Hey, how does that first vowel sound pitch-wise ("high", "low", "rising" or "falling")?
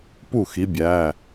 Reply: falling